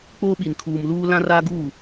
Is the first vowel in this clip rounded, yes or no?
yes